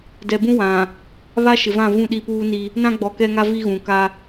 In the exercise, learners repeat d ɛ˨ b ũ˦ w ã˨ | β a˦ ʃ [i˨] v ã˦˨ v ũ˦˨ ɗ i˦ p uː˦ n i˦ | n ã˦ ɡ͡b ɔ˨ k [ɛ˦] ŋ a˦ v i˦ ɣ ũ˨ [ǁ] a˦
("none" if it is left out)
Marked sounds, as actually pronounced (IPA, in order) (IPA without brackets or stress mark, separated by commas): ɪ˨, ɛ˦, k